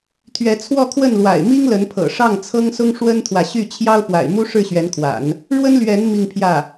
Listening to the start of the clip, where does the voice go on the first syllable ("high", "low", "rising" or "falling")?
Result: rising